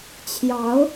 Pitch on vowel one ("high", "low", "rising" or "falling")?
rising